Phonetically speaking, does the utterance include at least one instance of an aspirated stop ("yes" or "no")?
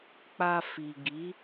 no